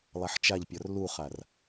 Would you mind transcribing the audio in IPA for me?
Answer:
lˠ a ħ t͡ʃ a ʎ pʲ ɔ r l u χ a r

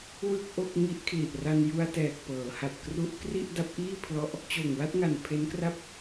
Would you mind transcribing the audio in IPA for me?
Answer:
w ɯ˥˩ k̚ ʔ o˥˩ k̚ ŋ i˦˥ ʔ kʰ l i˨˩ ʔ r a˧ n j u˧ a̯ t ɛː˨˩ k̚ p ɤː˩˦ h a˨˩ t̚ k r u˦˥ ʔ k r i˥˩ ʔ d a˦˥ p̚ ʔ iː˥˩ pʰ l ɔ˦˥ ʔ | t͡ɕ oː˨˩ ŋ w a˥˩ t̚ ŋ a˨˩ n pʰ e˦˥ n k r a˥˩ p̚

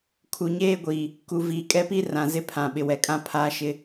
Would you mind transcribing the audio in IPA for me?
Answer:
kʰ u˨ ɲ eː˦ ɡʷ iː˨ | k u˨ v iː˨ kʼ ɛ˦ p i˦ r ã˨ z ɪ˦ pʰ ã˨ ɓ ɪ˨ w ɛ˨ kʼ ã˦ pʰ aː˦ ʃ ɪ˦

